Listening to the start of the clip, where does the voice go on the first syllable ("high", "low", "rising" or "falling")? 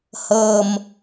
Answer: low